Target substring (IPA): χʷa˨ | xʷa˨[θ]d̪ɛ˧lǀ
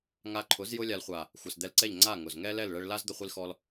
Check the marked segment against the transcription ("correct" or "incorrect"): incorrect